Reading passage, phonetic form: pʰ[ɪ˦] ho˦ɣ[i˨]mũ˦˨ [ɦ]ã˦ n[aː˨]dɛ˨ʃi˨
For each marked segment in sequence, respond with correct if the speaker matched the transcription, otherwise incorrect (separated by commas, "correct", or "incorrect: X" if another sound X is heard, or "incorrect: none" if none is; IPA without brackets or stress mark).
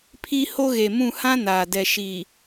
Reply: incorrect: i˦, incorrect: e˨, incorrect: h, correct